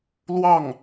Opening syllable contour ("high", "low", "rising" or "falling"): falling